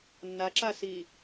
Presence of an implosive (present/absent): absent